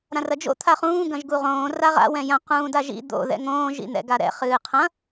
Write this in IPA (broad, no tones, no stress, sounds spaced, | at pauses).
ɾ ã r ɐ d͡ʒ o̰ t̪ʰ a χ ũː ɡ ɐ̃ ʒ ɡ u ʁ õː r a ʁ a̰ w ɛ̃ j ɐ̃ q ũː d a ʒ ḭ d̪ o̰ ð ɛ̰ ŋ õː ʒ ḭ n̪ ɛ̰ ɡ a ɾ ɛ̰ χ ɨː qʰ ɐ̃